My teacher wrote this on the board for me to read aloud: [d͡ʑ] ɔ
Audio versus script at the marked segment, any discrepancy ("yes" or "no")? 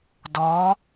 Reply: yes